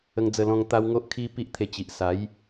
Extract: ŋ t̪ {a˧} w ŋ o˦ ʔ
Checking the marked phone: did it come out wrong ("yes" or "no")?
yes